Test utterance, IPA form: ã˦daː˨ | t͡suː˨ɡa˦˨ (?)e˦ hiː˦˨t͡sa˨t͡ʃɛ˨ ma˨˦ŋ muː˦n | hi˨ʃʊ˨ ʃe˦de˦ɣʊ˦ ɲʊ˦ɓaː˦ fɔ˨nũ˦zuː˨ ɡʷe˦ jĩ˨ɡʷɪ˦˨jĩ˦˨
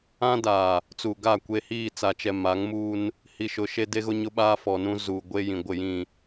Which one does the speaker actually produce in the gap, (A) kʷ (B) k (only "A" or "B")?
A